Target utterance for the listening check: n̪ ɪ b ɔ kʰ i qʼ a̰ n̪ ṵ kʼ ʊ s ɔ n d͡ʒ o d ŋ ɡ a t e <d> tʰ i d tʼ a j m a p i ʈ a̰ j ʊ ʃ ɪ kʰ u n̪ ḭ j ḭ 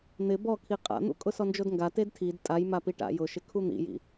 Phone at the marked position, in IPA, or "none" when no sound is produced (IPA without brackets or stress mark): d